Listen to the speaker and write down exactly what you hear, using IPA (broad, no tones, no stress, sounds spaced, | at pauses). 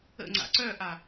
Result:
ə̰ ŋ͡ǀ a̰ ǀ œ ʔ a